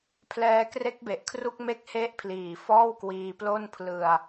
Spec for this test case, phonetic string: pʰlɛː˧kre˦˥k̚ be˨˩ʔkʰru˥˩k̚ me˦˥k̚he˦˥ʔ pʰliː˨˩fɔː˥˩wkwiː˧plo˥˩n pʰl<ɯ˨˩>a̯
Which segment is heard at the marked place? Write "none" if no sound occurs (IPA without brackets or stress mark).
ɯ˧